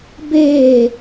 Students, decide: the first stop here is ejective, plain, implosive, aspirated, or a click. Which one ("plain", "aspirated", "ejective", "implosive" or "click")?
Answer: plain